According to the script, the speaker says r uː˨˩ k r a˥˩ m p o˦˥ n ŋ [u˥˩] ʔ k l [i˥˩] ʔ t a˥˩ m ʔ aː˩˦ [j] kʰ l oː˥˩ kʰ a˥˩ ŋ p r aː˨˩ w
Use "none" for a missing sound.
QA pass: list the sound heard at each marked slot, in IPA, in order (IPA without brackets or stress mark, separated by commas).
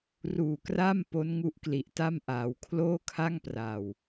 u˦˥, i˨˩, w